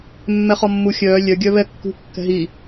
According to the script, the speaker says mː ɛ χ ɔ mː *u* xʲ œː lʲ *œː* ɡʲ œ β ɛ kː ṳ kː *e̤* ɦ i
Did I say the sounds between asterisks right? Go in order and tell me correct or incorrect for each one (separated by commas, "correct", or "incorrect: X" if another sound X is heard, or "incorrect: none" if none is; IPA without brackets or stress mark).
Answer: correct, incorrect: œ, incorrect: ɛ̤